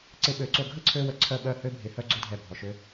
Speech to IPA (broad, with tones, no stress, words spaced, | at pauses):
ǀɪ˧ɓø˨˦ǀo˧ɡʱə˦ ǀʰø˦wə˧ ǀʰœ˦˨ɓœ˦˨hø˦ bʱɪ˧hœ˦ɡ͡ǀo˦dʱɛ˧ bʱɔ˨ʃø˧